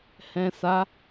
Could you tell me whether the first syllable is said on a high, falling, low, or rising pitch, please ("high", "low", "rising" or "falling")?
low